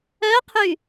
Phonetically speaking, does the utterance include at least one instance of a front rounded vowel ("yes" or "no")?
yes